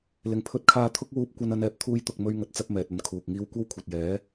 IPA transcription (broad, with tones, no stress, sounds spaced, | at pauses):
l ɪ˨˩ ŋ pʰ ɵ˧ t̚ kʰ aː˧ t̪ʰ ʊ˥ k̚ w uː˧ p̚ kʷ ɐ˥ n ɐ˥ n ɛː˧ p̚ t̪ʰ uː˥ j t̪ ʊ˨ k̚ m ɵ˧ ɥ ŋ ɐ˧ t̚ t͡s ɐ˥ p̚ m ɛː˨ t̚ ɐ˨˧ n kʰ uː˨ k̚ ŋ iː˥ w kʷ ɐ˥ w kʷʰ ɐ˨ t̚ j ɛː˨˥